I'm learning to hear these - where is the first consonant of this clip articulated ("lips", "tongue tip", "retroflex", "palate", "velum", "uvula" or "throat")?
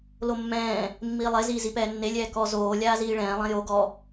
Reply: tongue tip